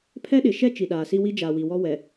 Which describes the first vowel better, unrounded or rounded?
unrounded